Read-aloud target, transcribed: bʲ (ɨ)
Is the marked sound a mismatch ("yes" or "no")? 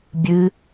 no